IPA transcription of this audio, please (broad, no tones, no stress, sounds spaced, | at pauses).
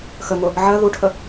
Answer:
x ə ŋ ʊ | ʕ ɜ ð u ʈʰ ə